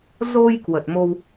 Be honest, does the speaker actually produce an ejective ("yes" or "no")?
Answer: no